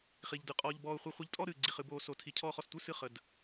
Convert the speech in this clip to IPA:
χ i˧ ʎ d ɯ˧ qʼ ɔː˧ ʎ b ɔː˧ ʊ̯ χʷ i˧ χʷ i˧ ʎ tʼ ɔ˥˧ ɾ ɨː˧ ɡ͡ǀ i˧ χ ɨ˧ b oː˧ s o˧ tʰ i˧ cʰ ɔː˥˧ χ ɔ˧ s tʷ ɯ˥˧ s ɨ˥˧ χ ə˧ d

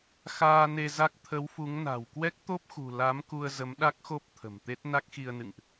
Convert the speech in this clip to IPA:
x aː˧ n e˧ z a˦˥ k̚ t̪ʰ ə˨˦ w f u˨˦ ŋ n a̤˨˩ w k w ɛ˦˥ k̚ t̪ o˦˥ p̚ x ṳ˨˩ l a˨˦ m k u˧ ə̯ z ə˨˦ m ɗ a˦˥ k̚ x o˦˥ p̚ t̪ʰ ə̤˨˩ m t̪ e˦˥ t̚ n a˦˥ k̚ x i˧ ə̯ n ɨ̰˧˨ ŋ ʔ

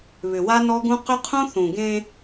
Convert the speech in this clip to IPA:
β ʏ˨ w a˦ n ɔ˦ ɡ ũ˦ q ʏ˦ qʰ ũ˦ θ ũ˨ ɡ ẽ˦

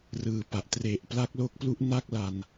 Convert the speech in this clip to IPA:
r ɯː˨˩ p a˨˩ ʔ t r e˨˩ ʔ p l a˦˥ k̚ l o˦˥ k̚ p l u˦˥ ʔ n a˥˩ k̚ l a˧ n

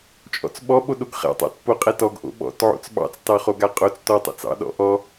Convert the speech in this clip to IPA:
t͡ʃʼ ɔ̰ t͡s ɓ ɔ ɓ o ɗ o ɡ χ ɛ̰ tˤ ɑ̰ t p o qʼ ɛ t ɔ ɡ ʔ o̰ ɓ ɔ̰ t ʕ o̰ t͡s ɓ ɑ̰ t͡s t ɑ χ o ɡ a qʼ o t͡s t ɔ tˤ ɛ̰ t͡s ɑ̰ ɗ ɔ̰ ʔ ɔ

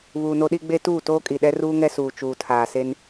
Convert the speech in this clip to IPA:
β uː˨ n o˦ ɗ i˦ ɡ͡b e˦ t uː˦˨ t oː˦ kʼ i˨ ɗ ɛ˦ r uː˦ ŋ ɛ˦ s uː˨ t͡ʃ uː˨ tʰ aː˨ s e˦ n

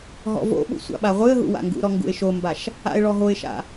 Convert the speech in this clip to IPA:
ɦ ɔ̰ v o̰ ɓ ṵ sʷ a̰ ɓ a ʁʷ ɨ ə̯ ɦ ṵ w a̰ ŋ ɡ ṵ ɾ ɔ ŋ ɡ ṵ ɪ̯ ʃ o m b a ʃ | a̰ ɪ̯ ɭ ɔ ɦ o ɪ̯ ʃ a̰

